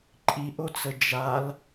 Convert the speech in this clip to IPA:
ǃʼ i ʔ o t͡s ə d͡ʒ a l

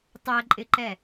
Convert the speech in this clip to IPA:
tˤ ɛ ǃʼ ɪ ǃ ɛ

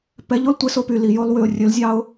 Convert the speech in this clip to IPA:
p ɛ˨˦ ʎ o˦ l tʷ e˧ s o˦ p y˨ l i˨ j o˦ lˠ w y˨ ʊ̯ rʲ ɵ˨˦ l zʲ ɑ˦ ʊ̯

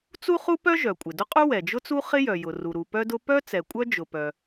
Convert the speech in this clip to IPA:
t͡s u˥ χ u˥ p œ˥ ʒ œ˩ kʷʼ ɪ˩ d ʊ˥ qʼ u˥ w ɛ˩ d͡ʒ ʊ˥ t͡s u˥ χ ɪ˥ j œ˩ j ʊ˩ r u˩ ɾ u˩ p œ˥ d ʊ˥ p œ˥ t͡s ɛ˩ kʷʼ œ˥ d͡ʒ ʊ˩ p œ˩

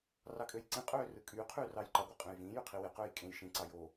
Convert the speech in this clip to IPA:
r ɑ kʼ ø j ǀ ĩ qʼ øː r ɯ kʼ yː qʰ yː r ɑː j ǃ ɑ ɡʷ ɑ qʼ ẽ j v ĩː j y qʰ i w e q øː j kʼ ẽ j ʃ ĩ ǀ ɑ j o

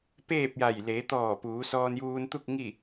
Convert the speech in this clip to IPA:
p eː˥˨ p̚ j a˧˩ j l eː˩˧ t̪ ɔː˧˩ p uː˩˧ s ɔː˧ n j uː˧ n t̪ u˥˨ k̚ ŋ i˥˨

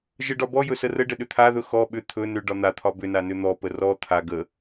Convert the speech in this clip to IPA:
ʒ ə ɖ ɒ b ɔ j ɵ s ə r ə ɖ ə ɗ ʏ t̪ʰ a ð ɵ x ɔ ɓ ʏ t̪ʰ ɵ n ʏ ɖ ɒ n̪ a t̪ʰ ɒ b ʏ n a n ʏ n̪ ɔ p ə r ɔ t̪ʰ a ɡ ə

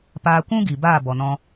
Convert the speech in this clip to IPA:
p aː˧ kʷ ũ˦ ɡ i˨ b aː˦˨ b ɔ˨ n ɔ̃˧

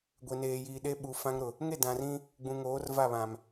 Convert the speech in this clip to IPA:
ɡʷ e˨ n eː˨ j iː˨ ɗ e˦ ɓ u˨ f ã˦ ŋ ɾ ʊ˨ | ŋ e˦˨ d ã˨ r ĩ˦ | ɡ͡b ũ˨ ŋ oː˨˦ r v a˦˨ β ã˨ m

